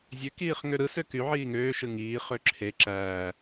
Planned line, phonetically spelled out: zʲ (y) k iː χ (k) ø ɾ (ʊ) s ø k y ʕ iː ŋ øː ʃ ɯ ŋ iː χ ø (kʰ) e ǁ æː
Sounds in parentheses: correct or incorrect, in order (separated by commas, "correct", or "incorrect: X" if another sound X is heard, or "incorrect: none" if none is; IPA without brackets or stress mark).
incorrect: ø, incorrect: ŋ, incorrect: ɯ, incorrect: ǁʰ